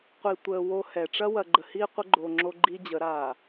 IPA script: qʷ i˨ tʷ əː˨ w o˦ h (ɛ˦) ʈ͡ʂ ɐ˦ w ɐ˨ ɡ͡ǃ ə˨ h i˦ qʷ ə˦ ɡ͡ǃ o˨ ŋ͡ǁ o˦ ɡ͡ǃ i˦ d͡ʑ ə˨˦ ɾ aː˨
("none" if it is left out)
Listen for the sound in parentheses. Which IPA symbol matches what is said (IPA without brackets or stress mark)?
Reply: ɛ˨